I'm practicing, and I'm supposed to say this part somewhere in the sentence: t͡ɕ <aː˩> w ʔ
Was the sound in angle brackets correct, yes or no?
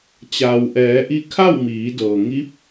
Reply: yes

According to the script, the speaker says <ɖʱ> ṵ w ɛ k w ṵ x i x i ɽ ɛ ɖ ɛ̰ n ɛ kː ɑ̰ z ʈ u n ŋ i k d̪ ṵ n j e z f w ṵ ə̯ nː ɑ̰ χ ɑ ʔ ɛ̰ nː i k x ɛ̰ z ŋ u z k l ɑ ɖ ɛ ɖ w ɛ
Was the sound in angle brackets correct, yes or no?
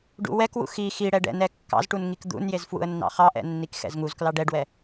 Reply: no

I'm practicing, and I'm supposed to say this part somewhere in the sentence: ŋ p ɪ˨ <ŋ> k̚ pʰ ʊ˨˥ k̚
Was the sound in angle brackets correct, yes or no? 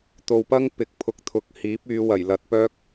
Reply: no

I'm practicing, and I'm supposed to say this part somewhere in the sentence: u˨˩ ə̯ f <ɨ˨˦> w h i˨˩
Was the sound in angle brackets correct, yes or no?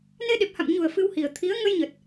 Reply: no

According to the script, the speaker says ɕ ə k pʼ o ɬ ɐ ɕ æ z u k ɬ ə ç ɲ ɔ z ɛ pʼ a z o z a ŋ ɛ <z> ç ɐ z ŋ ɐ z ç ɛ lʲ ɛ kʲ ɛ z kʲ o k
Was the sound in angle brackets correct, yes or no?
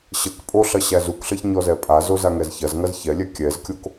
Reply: yes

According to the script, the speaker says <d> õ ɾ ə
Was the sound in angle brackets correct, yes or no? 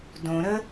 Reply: yes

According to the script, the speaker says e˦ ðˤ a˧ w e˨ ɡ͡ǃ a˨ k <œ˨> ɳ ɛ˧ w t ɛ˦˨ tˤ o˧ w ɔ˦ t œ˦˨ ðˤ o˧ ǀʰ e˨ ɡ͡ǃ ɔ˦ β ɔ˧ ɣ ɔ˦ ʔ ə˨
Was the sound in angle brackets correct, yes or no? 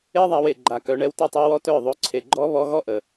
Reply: no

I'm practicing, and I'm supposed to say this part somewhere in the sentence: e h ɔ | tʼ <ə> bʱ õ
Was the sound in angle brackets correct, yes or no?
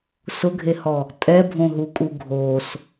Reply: no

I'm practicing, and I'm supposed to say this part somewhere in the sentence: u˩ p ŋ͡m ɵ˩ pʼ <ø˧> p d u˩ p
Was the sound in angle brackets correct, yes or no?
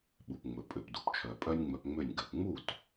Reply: no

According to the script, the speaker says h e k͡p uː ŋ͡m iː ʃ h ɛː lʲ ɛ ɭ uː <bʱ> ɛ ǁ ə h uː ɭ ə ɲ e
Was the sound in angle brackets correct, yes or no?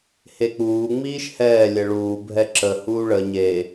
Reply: yes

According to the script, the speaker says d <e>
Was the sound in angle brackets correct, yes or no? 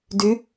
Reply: no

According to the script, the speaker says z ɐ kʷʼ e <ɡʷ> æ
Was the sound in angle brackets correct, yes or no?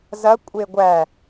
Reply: yes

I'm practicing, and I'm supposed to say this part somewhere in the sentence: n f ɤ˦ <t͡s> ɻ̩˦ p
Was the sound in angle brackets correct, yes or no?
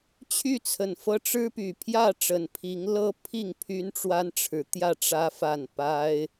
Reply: no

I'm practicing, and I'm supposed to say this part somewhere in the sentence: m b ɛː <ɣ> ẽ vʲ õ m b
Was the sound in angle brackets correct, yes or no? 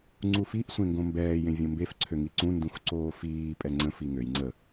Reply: no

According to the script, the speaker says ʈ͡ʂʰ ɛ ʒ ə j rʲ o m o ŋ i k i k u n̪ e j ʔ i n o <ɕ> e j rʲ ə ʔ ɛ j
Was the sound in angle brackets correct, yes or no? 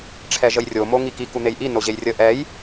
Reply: no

